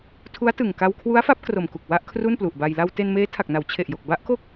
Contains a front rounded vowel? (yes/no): no